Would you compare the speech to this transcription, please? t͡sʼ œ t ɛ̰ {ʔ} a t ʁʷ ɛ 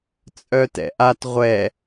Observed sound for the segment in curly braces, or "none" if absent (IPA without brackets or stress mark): ʔ